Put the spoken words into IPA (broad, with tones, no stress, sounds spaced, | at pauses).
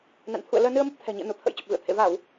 n a̰˧˨ n t̪ʰ ṵ˧˨ ə̯ l əː˧ n ɨ˧ ə̯ m ə˦˥ p̚ t̪ʰ ɛ̤˨˩ ɲ ḭ˧˨ ə̯ n u˧˩ t̪ʰ ə̰˧˥ j t͡ɕ ə˨˩ p̚ v ɨ̰˧˨ ə̯ t̪ʰ ḛ˧˨ v aː˧˩˨ w